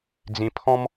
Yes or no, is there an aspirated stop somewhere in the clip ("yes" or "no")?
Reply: yes